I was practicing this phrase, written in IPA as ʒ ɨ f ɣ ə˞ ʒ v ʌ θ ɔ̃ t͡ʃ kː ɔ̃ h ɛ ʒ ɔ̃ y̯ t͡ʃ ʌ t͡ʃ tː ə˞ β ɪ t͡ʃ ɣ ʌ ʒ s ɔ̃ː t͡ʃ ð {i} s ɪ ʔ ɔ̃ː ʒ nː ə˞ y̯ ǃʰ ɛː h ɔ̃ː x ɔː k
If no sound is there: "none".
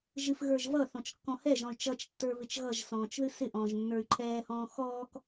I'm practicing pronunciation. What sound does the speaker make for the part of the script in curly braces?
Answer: ɨ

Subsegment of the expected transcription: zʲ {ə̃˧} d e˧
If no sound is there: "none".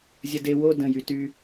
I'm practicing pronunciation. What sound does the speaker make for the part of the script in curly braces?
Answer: ə˧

